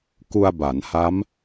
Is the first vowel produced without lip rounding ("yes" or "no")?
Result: no